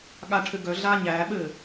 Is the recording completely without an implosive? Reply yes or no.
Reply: no